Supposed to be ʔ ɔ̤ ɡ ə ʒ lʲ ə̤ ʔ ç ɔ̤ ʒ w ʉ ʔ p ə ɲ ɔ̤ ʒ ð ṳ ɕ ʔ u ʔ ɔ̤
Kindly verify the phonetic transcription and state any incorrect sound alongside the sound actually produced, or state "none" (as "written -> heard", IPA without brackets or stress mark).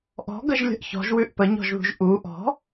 ɕ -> ʒ